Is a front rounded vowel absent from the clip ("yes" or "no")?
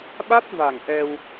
yes